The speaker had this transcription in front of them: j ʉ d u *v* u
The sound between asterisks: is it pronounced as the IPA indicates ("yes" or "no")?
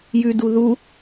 no